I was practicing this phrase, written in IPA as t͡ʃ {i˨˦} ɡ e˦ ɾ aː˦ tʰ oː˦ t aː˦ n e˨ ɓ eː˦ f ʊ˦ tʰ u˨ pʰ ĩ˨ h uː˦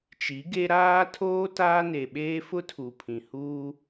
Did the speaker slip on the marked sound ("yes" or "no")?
no